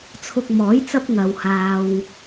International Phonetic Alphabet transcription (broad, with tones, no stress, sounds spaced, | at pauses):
t͡sʰ ʊ˧ k̚ m ɔː˨˥ j t͡s ɐ˥ p̚ ŋ ɐ˨ w h aː˨ w